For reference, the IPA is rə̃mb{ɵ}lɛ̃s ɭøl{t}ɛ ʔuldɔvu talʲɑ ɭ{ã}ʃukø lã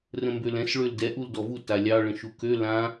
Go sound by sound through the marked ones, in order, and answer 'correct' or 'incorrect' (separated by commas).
incorrect, incorrect, incorrect